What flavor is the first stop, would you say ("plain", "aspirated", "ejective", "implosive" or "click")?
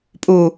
ejective